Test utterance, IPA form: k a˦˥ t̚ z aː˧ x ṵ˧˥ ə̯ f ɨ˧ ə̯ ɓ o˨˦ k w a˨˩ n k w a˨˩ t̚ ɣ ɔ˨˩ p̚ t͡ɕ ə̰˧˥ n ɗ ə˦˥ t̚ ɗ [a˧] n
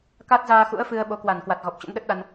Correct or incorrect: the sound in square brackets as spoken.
correct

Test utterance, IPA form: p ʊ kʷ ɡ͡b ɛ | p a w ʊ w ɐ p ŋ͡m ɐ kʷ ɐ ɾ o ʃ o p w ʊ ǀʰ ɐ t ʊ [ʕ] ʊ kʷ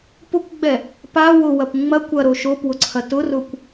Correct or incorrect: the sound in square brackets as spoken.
incorrect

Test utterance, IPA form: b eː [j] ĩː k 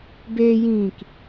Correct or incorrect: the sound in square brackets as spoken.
correct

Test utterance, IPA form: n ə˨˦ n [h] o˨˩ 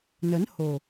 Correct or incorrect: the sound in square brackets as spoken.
correct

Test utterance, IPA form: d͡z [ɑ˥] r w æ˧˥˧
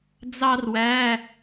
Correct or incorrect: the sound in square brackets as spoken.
correct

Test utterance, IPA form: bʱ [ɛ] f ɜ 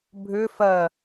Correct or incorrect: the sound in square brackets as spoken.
incorrect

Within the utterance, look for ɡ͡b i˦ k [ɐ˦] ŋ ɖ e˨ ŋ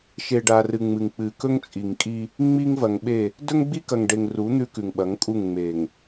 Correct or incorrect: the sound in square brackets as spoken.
incorrect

